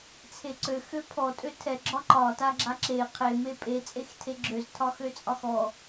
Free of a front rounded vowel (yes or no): no